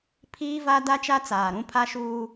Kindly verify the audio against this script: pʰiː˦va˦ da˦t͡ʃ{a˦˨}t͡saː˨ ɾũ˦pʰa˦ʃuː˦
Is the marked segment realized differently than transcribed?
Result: yes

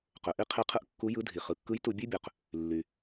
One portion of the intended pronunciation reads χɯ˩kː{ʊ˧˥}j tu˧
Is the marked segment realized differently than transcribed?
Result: yes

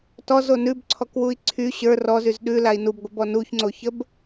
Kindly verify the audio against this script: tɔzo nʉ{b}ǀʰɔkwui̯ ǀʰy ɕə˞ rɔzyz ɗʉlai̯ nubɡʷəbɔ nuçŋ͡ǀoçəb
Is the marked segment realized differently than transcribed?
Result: no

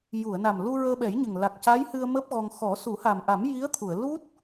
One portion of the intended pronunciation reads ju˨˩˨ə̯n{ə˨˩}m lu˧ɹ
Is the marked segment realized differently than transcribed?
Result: yes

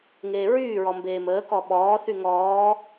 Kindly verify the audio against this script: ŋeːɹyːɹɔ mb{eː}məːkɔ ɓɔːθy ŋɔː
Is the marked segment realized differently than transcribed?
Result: no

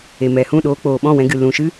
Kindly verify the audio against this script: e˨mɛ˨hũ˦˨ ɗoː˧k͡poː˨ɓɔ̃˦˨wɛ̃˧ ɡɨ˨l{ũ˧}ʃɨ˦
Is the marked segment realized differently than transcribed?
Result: yes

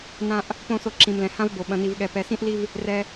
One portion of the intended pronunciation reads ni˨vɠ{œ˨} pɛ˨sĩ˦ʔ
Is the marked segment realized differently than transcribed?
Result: yes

